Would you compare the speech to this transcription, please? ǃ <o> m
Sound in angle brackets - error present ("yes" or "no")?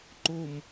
no